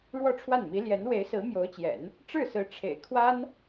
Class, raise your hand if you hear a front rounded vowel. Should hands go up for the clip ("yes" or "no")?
no